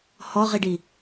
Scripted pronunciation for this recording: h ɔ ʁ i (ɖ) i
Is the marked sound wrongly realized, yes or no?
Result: no